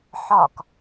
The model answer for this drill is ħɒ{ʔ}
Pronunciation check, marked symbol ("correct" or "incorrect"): incorrect